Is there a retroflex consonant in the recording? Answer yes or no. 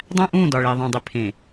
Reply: yes